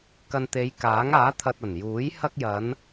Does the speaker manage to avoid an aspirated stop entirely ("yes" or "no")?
no